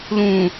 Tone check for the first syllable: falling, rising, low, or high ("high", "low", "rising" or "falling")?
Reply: low